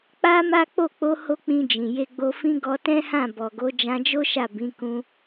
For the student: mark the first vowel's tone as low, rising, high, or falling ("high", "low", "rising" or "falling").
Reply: high